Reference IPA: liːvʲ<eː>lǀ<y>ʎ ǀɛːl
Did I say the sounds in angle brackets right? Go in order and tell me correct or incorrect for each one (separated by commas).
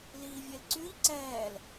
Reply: incorrect, correct